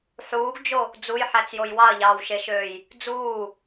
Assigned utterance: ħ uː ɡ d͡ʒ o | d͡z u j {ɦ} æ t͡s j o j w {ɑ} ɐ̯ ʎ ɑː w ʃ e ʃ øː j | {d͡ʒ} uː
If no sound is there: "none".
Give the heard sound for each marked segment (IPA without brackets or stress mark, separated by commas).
ħ, ɑ, d͡z